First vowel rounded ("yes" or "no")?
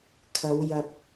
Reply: no